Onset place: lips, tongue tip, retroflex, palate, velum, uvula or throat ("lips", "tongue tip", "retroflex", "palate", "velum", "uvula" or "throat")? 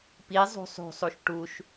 lips